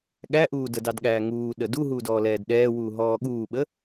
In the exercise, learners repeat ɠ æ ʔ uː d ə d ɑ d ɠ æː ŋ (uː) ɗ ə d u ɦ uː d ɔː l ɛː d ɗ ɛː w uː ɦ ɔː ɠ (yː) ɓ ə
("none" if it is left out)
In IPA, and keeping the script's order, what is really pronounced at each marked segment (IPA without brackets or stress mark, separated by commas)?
uː, uː